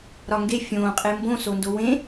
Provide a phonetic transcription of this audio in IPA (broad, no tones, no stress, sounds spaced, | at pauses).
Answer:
ɾ ɒ ŋ ɡ e fʲ õː qʼ e m b õ s o n d o w ẽ